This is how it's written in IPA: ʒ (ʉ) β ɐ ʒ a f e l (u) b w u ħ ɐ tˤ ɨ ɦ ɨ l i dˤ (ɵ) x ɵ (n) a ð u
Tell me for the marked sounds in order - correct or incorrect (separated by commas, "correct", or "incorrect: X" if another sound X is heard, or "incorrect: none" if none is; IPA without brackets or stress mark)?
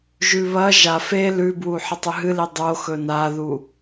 correct, incorrect: ʉ, incorrect: o, correct